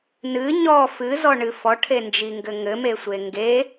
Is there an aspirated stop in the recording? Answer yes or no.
yes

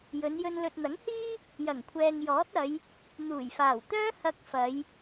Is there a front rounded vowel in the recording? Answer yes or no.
yes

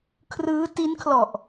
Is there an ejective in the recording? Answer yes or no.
no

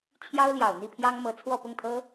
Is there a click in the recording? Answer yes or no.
no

